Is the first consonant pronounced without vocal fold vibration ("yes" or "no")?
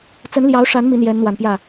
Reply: yes